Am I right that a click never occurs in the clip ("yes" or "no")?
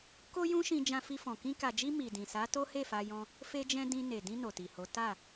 yes